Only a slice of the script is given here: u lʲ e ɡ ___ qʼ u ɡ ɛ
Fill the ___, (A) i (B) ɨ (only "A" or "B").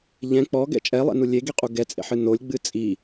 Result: A